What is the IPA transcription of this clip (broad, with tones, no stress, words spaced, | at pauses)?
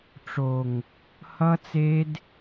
ʈ͡ʂo˨ŋ | hʌ˦t͡se˦d